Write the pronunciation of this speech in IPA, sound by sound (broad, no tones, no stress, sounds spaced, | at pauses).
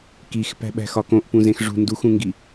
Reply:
k i x p æ̤ ɓ æ̤ x ɒ k õ ʔ p ũ z ẽ x ʐ ṳ n d u x ũ ŋ ɡ i